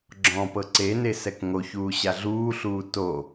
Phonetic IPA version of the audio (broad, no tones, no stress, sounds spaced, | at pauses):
ɡ͡ǁ ɔ̃ p ɤ ǀ e n e s ɛ k ŋ o ç uː ɕ a ɮ uː ɬ uː t o